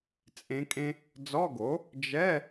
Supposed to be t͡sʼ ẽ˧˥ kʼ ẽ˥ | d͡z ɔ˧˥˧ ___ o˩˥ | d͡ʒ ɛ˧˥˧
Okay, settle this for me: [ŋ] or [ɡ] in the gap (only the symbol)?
ɡ